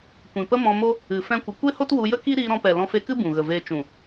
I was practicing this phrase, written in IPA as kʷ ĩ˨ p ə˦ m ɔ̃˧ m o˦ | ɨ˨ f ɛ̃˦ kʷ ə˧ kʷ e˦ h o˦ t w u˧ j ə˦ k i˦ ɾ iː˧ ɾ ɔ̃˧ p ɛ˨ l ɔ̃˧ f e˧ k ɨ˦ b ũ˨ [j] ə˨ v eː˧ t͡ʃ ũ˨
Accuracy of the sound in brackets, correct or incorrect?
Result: incorrect